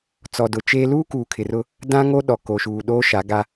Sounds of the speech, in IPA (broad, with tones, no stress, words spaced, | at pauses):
t͡sɔ˨dʊ˨t͡ʃeː˦ luː˦ kuː˨kʰɪ˨rʊ˦ | dã˦ŋo˦ɗɔ˨ ko˨ʃuː˨ɗoː˦ ʃa˨˦ɡa˦